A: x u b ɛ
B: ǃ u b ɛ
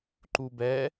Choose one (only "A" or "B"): B